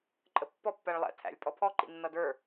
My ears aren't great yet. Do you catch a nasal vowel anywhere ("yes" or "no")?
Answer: no